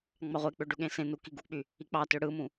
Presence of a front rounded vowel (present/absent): present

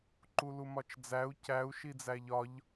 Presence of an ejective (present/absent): absent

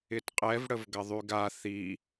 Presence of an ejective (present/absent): present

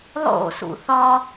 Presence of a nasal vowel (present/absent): absent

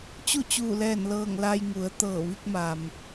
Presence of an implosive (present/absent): absent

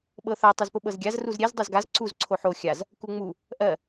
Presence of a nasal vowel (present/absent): absent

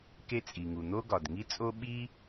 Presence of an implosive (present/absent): present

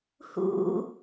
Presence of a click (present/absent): absent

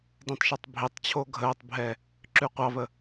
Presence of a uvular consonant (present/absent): present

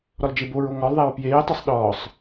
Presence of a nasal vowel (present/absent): absent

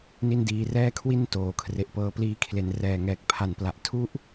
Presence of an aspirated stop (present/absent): present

